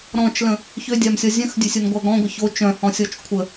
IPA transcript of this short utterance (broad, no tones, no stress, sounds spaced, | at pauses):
ɾ ɔ̃ t͡ʃ l ə̃ | ç ø dʲ a m sʲ ɔ zʲ œ̃ x dʲ ø sʲ o n ɡʷ a ɡ ɔ̃ ɡʷ ə ç o t͡ʃ œ̃ h ɔ̃ sʲ ɔ t͡ʃ kʷʰ ə